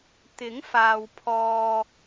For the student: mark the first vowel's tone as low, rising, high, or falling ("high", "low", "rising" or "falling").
rising